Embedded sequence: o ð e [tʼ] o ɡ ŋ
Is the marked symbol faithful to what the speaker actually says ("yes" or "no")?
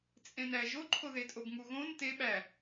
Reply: yes